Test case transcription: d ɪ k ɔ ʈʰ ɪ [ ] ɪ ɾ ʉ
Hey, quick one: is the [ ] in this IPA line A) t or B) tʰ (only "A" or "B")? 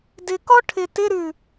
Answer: A